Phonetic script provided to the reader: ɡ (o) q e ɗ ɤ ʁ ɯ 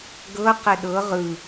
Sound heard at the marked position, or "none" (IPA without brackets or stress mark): ɤ